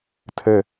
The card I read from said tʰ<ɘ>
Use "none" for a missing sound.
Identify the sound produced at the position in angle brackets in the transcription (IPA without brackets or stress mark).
ɘ